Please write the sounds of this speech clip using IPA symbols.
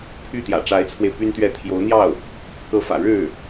pʰ y˥˩ t̪ j ä̰˨˩ ʈ͡ʂ a˧˥ ɪ̯ t͡sʰ w e˧ ɪ̯ p y˥ n t̪ ɥ ɛ˥˩ t̪ʰ j o˧˥ ʊ̯ n̪ j ɑ˥˩ ʊ̯ | k ɤ˧˥ f ä̰˨˩ ɻ ɻ̩˥˩

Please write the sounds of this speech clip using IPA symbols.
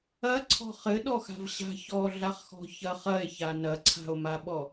ɐ ǀʰ ɔ̤ χ ɘ ɗ ɔ x a̤ v ɕ a̤ ç ɔ ɮ a χ x ɔ̤ ç ɐ χ ɐ e̯ ç a n ɐ ǀʰ a̤ o̯ m a ɓ ɔ

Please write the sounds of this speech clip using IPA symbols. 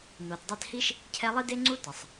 n o˨ t dˤ ɛ˦ t h i˥ ʃ | cʰ ɛ˦ lˠ i˥ d e˥ ŋ͡ǀ u˥ t ə˩ sˤ

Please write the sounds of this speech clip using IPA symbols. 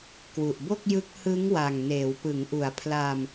k w u˨˩ ʔ b o˥˩ k̚ j ɯ˦˥ k̚ h ɯ˦˥ ŋ w a˨˩ ŋ n eː˩˦ w p ɯ˩˦ ŋ ʔ u˩˦ a̯ pʰ l a˧ m

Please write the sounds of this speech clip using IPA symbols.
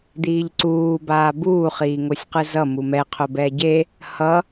d̪ iː ʎ ǀ uː b aː b uː χ iː ŋ o sʲ q ɯ z ʌ m u m ɛ qʰ o b ɛ ɟ e | h ʌ

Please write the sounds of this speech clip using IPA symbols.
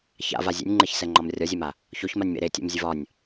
ç a̰ v a zʲ ɛ̰ nʲ ŋ͡ǃ e ç s ɛ ŋ͡ǃ ɒ m rʲ ɒ zʲ ɛ m a | ç o ç m a nʲ m ḛ ɾ e tʲ ɛ̰ m zʲ ɘ v ɒ nʲ

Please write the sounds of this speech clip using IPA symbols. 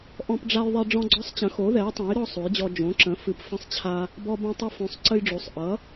ʔ ɔ̃˦ p ɖ͡ʐ a˦ j ðˤ ɛ˦ ɖ͡ʐ ɔ̃˦ ɡ͡ǀ ɔ˦ sˤ t͡ɕ ə̃˨˥ x o˨˥ ð ɛ˨˥ j tˤ õ˨˥ j ɾ ɔ˦ sˤ o˨˥ j d͡ʑ ɔ˦ d͡ʒ õ˨˥ ǁ ə̃˨˥ f ɨ˨˥ p f ə̃˦ sˤ t͡ɕʰ a˦ | b ɔ˦ b ũ˦ tˤ ɨ˦ f õ˨˥ sˤ ǀ ə˦ j ɖ͡ʐ o˨˥ sˤ ʔ ʌ˨˥

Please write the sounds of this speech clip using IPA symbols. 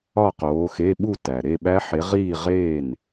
ɒ˥˧ q oː˨˦ x e˧˥˧ ɓ u˥˧ t æ˩ ɾ e˥˧ ɓ æ˦˥ ħ e˨˦ ʁ iː˥˧ ʁ eː˥˩ n

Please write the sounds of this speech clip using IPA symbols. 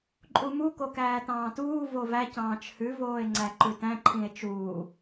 ǃʼ u m u k o k æː t ɑ̃ː t uː v o v æ c ɑ̃ː t͡ʃ h ʉ v oː e̯ ŋ͡ǀ æ ǃ ʉ t æ̃ ǃʰ ĩ e̯ t͡ʃ uː

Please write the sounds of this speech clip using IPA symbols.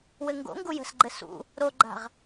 w ɘ ŋ ɡ o̰ ŋ ɡ u j ə̤ s ɡ͡ǃ ɘ s ṵ | ɾ o ɡ͡ǃ a̤ ʁ

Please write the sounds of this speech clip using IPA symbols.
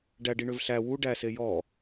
ɖ æ ɖ i ɳ ø v ɬ æ w u ɖ æ s e j ɔ

